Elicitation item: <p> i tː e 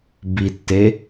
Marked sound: incorrect: b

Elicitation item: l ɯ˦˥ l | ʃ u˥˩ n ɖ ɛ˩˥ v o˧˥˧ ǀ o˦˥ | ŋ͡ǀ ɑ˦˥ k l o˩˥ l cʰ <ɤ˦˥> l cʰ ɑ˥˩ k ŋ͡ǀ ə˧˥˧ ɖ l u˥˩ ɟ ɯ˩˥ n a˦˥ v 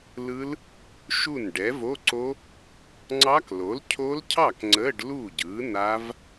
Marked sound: incorrect: o˦˥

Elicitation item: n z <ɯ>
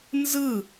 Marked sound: correct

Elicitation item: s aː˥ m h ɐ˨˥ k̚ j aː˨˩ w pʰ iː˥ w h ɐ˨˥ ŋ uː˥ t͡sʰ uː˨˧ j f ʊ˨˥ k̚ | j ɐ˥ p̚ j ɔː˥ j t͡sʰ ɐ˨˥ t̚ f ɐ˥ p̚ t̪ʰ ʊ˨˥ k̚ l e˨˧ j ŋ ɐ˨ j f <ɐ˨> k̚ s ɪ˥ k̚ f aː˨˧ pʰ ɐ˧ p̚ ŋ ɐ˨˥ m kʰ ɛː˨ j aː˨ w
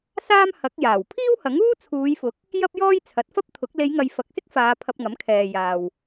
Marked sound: correct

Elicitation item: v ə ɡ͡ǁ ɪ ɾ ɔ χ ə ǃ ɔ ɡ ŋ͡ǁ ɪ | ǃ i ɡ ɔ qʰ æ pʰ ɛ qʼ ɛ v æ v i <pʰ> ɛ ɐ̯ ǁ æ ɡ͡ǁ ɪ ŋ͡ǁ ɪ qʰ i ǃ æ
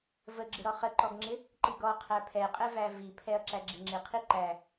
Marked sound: correct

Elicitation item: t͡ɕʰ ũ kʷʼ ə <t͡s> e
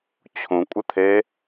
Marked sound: incorrect: t̪ʰ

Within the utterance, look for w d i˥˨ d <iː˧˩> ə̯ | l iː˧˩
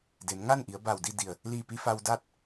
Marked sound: incorrect: i˧˩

